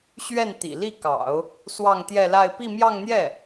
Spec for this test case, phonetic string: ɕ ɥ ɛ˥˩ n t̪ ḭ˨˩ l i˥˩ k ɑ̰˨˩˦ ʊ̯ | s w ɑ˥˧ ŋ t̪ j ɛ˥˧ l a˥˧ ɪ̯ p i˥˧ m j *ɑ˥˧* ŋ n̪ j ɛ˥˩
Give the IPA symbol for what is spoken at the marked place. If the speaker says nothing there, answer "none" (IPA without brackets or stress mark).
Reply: ɑ˥˧